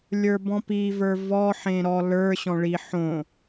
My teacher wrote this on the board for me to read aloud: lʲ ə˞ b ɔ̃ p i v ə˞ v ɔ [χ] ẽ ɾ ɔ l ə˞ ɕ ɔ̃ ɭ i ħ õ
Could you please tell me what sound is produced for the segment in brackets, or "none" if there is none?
ħ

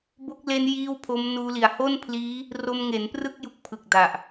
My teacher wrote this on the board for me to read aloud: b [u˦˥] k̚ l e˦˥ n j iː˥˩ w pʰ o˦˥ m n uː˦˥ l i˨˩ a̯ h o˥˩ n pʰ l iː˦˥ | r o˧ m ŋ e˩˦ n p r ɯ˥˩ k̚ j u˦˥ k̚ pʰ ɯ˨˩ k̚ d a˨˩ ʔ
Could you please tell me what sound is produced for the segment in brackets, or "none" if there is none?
o˦˥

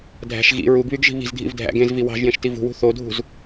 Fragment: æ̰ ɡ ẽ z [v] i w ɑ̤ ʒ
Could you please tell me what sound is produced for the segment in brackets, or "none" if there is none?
v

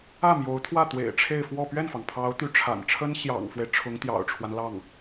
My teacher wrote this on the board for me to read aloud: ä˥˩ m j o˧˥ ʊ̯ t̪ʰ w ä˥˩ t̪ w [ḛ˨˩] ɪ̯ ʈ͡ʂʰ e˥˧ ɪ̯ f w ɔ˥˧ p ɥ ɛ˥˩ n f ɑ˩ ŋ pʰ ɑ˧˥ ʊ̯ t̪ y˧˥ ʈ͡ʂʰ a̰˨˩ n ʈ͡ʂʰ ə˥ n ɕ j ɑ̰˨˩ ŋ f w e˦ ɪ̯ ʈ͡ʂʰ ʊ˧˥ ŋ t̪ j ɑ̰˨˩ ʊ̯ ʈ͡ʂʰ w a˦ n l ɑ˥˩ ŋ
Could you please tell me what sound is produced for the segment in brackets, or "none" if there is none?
ḛ˨˩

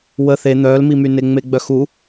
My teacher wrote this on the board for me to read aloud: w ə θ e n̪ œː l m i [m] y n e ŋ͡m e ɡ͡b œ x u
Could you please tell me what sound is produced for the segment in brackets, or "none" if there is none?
m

